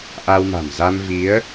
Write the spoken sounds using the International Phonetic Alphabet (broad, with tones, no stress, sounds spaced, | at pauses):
ʔ a˧ w m a̤˨˩ m z a˧ m v i˨˦ ə̯